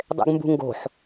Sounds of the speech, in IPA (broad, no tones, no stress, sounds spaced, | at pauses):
dˤ ḛ ɡ m b ṳ ŋ ɡ o̤ ħ